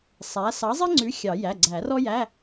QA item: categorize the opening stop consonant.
click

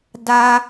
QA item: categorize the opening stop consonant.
plain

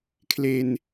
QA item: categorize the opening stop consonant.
aspirated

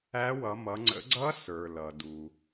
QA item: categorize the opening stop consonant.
click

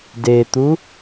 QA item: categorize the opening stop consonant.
plain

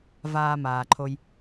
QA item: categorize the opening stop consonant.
click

